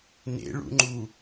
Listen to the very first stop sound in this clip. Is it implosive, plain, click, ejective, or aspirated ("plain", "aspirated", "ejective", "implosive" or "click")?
click